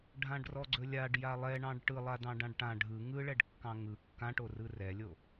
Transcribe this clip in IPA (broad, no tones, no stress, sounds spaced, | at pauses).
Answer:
ɖʱ ã ɖ r ɔ ɡ͡ǀ ɵ lʲ a ɖ j a lˠ ɛ ɳ ɑ̃ ɖ ʈ ɯ lˠ a d ɑ̃ ɖ ã ɖ ʈ ã ɖʱ ɯ ŋ ɯ ɭ ɛ ɖ kː ɑ̃ ŋ ɯ kː ã ʈ o r ɯ r ɛ lʲ o